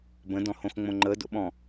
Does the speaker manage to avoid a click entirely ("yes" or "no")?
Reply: no